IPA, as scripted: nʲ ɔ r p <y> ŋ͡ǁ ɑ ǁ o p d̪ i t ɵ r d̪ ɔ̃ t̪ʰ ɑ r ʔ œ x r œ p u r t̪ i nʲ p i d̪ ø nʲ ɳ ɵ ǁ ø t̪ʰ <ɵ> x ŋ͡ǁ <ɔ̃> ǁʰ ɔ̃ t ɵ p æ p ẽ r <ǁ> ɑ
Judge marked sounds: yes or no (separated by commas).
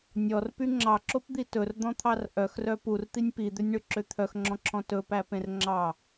yes, no, yes, no